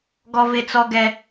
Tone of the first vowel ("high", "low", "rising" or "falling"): high